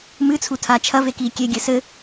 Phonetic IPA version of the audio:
m ɨ t͡sʰ u tʰ a t͡ʃʰ ɐ v e k iː kʲ e ɡʲ ɘ s ɘ

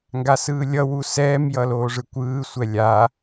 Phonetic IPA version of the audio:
ŋ ɡ a s ɯː lʲ ʌ w u s ɛː m j ʌ l oː ʐ ɯ kʷ ɯː sʷ ɛ lʲ a

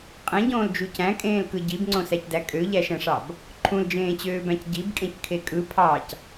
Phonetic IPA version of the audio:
qʼ ẽ ɟ õː l d͡ʒ u c æ̃ kʼ ẽː l k ɯ ɟ i b ŋ͡ǀ õ s æ c d æ kʼ ø ʎ æ ʃ æ̃ ʂ ɑ b | ǃʰ ũ l d͡ʒ ẽː t͡ɕ øː b æ̃ c ɟ i b kʼ ẽ c kʰ e kʼ ɯ pʰ ɑ c

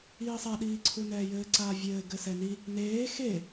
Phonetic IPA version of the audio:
iː sˤ a ɗ iː ǀʰ u n ɛː j ɘː ǀ aː vʲ ɘː ɡ ɘ s ɛ n i | n eː x e

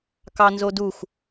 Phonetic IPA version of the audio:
k ɑ n z o d u x

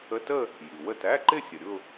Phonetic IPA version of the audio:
ə˧˥˧ t ə˥˧ | j i˩ w ə˥˩ t æ˧˥˧ ǃ ɪ˥˧ sʲ ə˩ ɾʲ ʊ˥˧

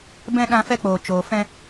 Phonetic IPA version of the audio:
b ɛ̃˧ ɗ ã˧ f ɛ˧ k͡p oː˨ t͡ʃ oː˨ f ɛ̃˧

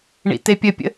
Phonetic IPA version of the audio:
ɳ ḭ t e pʲ ə pʲ ə̰

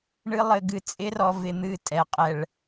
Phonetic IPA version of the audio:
ɳ ɨ˦ lˠ ɘ˧ ɡ ɨ˧ t͡sʼ ɪ˦ r ɔ˧ v ɪ˧ n̪ ɨ˦˨ tʼ ɛ˨ qʼ ɛ˨ ɭ

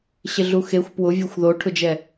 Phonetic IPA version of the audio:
ɕ ɪ ɮ u x e xʷ p w ʊ vʲ a xʷ ð o ʈʰ ʊ d͡ʒ ɛ

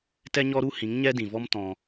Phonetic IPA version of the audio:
t ɛ˦ ɲ ɔ˦ ɾ u˦ h ĩ˨˦ ŋ ɲ ɛ˦ d ĩ˨ v ɔ˦ m t ɔ̃˧

